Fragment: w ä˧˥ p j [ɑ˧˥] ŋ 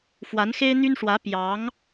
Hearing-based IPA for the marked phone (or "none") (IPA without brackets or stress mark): ɑ˧˥